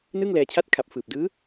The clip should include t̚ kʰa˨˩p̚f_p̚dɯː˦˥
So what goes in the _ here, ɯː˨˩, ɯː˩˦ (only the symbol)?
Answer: ɯː˨˩